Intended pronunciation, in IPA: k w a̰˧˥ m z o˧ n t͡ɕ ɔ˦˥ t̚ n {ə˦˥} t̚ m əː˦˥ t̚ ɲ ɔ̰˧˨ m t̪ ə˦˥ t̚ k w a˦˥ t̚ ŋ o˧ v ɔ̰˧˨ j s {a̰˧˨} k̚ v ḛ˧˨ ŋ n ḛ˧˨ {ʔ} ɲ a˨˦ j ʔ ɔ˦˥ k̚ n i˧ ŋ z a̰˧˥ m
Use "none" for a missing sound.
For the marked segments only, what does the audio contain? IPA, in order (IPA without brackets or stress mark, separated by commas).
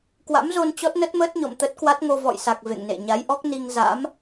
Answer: ə˦˥, a˨˩, none